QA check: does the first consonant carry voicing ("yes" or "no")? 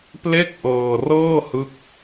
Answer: no